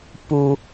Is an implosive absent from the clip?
yes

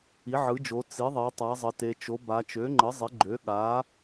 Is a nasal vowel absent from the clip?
yes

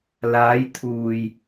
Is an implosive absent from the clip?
yes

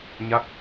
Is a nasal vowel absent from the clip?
yes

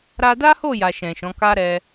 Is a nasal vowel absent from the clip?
no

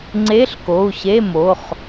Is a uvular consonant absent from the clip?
no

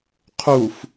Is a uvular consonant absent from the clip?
no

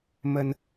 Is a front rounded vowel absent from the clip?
yes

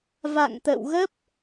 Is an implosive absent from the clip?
yes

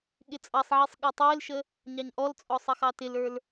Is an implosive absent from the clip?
no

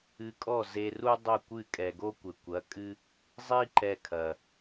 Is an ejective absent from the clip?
no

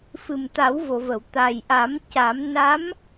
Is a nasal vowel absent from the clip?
yes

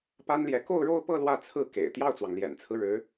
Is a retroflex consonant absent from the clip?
no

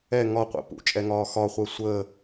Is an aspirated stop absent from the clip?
yes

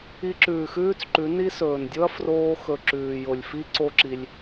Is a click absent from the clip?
no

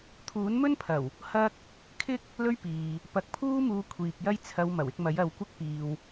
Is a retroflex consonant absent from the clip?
yes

